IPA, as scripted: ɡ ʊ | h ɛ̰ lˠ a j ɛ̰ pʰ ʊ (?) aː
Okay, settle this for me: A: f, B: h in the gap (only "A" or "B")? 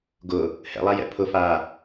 A